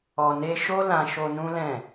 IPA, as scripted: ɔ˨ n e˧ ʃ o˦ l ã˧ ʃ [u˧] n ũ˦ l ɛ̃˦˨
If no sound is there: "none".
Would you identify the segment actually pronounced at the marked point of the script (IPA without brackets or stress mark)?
o˧